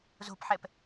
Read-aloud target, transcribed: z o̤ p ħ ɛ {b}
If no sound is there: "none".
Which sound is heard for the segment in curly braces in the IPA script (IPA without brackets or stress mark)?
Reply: p